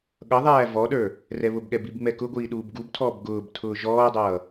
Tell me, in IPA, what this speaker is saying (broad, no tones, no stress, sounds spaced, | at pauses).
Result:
ɠ ʌ ðˤ æː v ɔ ɗ ə˞ | r ɛ β ʊ b ɠ ɛ b i b ŋ͡m ɛ k ʊ ɡʷ iː ɗ uː b ɡ u b tʰ ɔː b ɡ ʊː b tʰ ʊː ʒ ɔː dˤ ʌː